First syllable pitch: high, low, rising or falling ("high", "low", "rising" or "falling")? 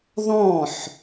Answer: falling